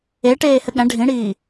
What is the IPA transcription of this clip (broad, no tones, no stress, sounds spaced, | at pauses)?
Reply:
e ʈ eː h ɘ ɠ æ̃ ɖʱ ĩ ɽ iː